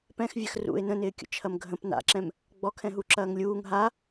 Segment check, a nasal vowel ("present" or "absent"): present